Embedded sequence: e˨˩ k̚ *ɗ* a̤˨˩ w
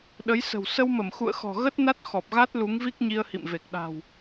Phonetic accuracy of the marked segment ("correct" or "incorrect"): correct